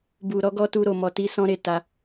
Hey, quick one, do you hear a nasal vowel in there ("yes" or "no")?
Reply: yes